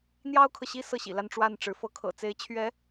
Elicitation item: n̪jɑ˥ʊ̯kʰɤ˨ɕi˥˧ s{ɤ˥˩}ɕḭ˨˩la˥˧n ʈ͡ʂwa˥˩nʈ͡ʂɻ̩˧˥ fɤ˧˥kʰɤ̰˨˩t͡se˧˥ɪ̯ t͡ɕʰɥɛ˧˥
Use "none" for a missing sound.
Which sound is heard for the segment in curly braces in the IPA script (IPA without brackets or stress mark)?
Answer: ɤ˥˩